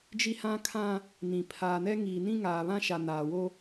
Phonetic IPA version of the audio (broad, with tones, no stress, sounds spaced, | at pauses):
d͡ʒ i˦ h ã˦ kʰ ã˦ | n ĩ˨ pʰ aː˨ n ɛ˦ ŋ iː˨ n ĩ˦ ŋ aː˨ β ã˦ ʃ a˨ n aː˨ w o˦